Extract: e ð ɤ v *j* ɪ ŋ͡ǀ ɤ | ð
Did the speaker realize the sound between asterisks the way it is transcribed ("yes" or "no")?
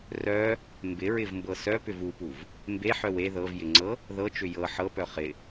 yes